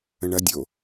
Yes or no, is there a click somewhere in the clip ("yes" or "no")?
no